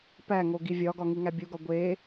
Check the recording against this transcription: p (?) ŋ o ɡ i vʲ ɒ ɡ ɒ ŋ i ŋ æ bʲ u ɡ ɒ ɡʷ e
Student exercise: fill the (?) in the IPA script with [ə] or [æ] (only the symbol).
æ